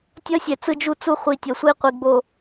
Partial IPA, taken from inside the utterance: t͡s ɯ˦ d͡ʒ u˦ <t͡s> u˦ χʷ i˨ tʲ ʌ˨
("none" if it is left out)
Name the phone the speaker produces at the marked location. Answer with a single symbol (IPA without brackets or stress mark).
t͡s